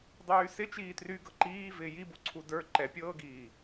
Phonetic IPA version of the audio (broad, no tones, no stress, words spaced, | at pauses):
dˤyːsɪ t͡ʃiːtry ɡɤǃiː vɪːjibuǀʰu də˞ ǃɛpʲɤːɡiː